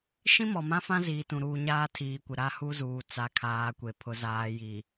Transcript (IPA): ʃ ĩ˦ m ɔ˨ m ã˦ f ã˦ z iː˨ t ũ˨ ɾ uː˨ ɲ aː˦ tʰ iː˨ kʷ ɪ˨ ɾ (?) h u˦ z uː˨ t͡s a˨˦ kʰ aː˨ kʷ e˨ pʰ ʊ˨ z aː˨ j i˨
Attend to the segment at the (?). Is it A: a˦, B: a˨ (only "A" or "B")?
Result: A